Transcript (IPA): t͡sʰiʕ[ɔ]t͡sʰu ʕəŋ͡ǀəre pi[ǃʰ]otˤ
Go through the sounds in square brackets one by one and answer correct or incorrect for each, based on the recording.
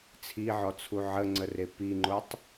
correct, incorrect

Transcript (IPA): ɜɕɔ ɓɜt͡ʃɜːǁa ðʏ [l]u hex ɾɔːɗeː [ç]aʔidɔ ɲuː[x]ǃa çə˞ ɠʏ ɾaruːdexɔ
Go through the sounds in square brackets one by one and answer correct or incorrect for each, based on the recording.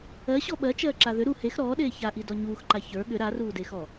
incorrect, correct, correct

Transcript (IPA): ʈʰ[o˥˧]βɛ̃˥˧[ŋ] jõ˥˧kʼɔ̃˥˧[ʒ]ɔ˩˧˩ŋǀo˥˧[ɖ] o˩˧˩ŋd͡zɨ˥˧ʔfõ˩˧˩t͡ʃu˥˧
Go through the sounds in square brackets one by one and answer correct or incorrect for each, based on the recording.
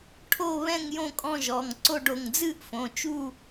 correct, correct, correct, correct

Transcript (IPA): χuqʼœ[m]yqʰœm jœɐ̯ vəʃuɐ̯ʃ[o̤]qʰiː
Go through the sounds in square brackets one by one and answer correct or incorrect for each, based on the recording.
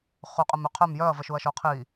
correct, incorrect

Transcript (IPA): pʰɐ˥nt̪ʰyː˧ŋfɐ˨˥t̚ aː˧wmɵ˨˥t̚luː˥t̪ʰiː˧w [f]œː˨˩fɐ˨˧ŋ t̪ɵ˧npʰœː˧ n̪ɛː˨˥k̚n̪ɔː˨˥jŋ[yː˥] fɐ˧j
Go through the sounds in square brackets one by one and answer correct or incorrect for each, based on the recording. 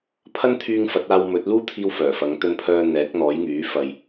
correct, incorrect

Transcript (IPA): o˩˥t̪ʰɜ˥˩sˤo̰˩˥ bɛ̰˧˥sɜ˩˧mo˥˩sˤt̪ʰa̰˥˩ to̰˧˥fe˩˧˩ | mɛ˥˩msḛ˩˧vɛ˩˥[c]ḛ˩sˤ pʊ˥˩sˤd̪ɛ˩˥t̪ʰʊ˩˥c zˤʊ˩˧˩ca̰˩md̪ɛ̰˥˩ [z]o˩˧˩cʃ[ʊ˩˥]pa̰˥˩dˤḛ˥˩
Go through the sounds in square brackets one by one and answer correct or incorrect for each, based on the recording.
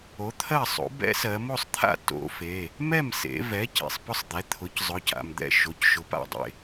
correct, incorrect, correct

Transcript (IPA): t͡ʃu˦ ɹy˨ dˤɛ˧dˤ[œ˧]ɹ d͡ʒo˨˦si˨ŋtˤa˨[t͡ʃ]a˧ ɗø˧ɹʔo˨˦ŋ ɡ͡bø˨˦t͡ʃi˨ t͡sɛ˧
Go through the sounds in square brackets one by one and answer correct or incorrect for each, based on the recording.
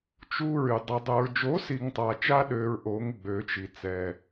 correct, correct

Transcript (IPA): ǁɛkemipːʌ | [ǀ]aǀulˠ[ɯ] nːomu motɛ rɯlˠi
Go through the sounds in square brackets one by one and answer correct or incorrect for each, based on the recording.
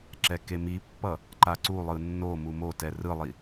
incorrect, correct

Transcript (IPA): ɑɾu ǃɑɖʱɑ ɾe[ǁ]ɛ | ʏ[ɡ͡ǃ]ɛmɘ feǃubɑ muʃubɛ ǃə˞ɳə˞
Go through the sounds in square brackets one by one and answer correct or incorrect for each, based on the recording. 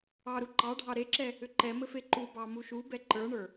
correct, incorrect

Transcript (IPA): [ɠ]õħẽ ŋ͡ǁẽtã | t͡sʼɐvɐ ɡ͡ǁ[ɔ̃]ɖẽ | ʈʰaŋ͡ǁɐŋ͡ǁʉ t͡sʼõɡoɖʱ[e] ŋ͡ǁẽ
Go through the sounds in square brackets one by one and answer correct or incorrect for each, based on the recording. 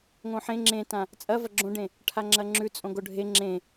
incorrect, incorrect, correct

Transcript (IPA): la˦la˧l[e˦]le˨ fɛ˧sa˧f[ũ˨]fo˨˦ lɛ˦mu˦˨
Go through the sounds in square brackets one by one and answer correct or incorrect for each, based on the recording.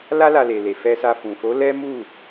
incorrect, correct

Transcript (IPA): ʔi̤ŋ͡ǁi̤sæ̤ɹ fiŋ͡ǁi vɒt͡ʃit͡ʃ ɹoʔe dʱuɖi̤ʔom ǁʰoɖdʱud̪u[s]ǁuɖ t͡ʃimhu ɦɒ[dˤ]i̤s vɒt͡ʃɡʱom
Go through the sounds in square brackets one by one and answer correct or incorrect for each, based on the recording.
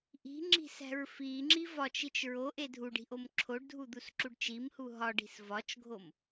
correct, incorrect

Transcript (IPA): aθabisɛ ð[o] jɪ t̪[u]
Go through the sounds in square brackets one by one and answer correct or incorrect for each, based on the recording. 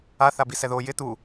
correct, correct

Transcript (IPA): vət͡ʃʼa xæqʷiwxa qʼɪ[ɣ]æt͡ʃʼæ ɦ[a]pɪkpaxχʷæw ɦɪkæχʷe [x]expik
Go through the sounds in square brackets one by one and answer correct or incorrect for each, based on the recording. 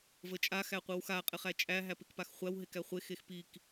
incorrect, incorrect, correct

